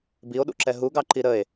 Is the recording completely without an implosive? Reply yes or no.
no